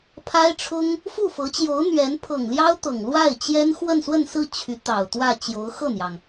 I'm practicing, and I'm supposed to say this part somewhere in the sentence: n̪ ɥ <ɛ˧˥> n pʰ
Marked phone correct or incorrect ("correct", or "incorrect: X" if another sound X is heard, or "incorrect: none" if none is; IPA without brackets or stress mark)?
correct